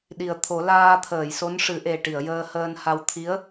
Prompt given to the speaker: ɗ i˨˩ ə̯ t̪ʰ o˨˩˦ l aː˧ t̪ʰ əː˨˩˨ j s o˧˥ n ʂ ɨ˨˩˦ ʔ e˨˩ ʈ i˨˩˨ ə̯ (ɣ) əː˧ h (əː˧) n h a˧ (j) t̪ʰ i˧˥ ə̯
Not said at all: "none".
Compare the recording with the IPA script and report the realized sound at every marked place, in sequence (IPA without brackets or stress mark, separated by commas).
j, əː˧, w